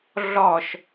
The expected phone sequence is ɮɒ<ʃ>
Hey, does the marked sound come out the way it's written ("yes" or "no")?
yes